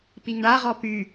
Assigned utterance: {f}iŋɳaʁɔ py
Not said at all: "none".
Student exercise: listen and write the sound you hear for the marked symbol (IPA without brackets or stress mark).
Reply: p